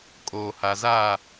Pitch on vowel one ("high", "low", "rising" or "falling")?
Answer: low